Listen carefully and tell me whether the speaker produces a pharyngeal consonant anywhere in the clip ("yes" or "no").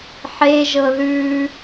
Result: yes